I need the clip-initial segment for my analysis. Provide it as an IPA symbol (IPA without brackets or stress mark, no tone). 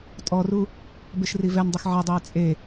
tʼ